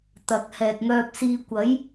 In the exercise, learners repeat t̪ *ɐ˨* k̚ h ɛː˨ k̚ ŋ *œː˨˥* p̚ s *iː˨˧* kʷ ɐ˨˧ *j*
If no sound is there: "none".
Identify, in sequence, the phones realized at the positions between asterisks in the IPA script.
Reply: ɐ˨, œː˧, iː˧, j

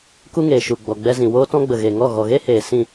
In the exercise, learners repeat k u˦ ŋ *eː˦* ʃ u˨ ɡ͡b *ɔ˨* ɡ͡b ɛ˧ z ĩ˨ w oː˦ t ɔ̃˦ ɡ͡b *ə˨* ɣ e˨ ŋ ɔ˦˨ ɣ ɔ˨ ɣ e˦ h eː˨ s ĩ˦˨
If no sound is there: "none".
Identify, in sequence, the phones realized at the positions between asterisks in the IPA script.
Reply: eː˨, ɔ˨, ə˨

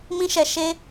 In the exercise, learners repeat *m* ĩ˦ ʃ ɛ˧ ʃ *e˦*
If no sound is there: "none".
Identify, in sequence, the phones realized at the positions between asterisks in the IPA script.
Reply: m, e˦

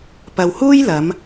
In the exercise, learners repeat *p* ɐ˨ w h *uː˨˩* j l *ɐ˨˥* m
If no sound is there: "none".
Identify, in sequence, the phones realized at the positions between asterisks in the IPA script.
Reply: p, uː˥, ɐ˨˧

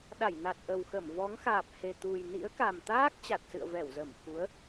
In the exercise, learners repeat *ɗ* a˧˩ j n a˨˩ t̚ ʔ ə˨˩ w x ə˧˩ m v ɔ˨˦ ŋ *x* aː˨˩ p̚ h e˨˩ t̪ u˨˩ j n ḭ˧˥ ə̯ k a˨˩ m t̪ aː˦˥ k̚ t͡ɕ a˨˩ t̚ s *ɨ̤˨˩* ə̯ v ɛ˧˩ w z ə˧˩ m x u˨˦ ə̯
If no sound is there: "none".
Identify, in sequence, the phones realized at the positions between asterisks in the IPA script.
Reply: ɗ, x, ɨ̰˧˨

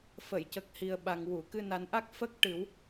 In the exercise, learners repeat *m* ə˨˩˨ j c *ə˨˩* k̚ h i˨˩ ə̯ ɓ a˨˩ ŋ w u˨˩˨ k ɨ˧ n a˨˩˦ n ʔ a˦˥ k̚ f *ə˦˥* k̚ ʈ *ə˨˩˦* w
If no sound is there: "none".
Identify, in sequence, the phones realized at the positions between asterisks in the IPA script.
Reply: f, ə˨˩, ə˦˥, ɨ˨˩˦

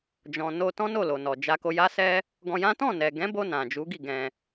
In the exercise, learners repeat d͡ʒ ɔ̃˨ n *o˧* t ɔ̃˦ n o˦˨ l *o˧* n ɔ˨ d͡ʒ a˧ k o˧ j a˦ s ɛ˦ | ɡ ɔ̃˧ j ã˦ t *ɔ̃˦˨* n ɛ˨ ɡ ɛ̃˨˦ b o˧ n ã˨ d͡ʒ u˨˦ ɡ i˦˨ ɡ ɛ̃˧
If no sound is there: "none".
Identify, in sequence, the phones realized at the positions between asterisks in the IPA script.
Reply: o˧, o˨, ɔ̃˦˨

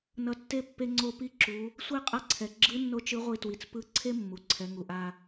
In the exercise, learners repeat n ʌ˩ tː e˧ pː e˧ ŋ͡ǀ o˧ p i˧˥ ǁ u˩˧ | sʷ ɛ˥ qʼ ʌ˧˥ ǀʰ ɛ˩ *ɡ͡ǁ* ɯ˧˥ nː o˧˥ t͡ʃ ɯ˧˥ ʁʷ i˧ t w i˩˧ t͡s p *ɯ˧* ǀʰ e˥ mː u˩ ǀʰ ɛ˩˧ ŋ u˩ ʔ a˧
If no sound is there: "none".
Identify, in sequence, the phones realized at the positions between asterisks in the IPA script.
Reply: ɡ͡ǁ, ɯ˧˥

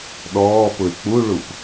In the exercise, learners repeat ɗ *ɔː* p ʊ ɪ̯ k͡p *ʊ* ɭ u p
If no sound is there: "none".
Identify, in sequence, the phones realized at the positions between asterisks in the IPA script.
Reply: ɔː, u

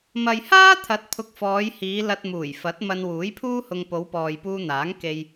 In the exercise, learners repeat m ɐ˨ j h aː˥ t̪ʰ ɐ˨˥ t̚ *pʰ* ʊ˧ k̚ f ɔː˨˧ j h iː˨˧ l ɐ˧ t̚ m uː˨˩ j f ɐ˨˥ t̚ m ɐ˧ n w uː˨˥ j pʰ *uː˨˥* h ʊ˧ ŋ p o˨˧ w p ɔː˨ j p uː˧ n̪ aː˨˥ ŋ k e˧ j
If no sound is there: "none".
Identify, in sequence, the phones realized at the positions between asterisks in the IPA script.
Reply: pʰ, uː˥

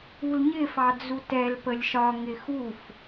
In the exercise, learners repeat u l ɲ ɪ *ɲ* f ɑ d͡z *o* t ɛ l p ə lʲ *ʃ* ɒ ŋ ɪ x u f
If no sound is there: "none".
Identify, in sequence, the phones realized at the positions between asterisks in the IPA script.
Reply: none, u, ʃ

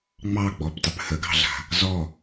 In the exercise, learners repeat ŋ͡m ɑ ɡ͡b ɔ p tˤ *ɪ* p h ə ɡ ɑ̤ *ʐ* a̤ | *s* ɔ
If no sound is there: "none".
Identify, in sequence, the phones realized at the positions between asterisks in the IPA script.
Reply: ɪ, ɮ, z

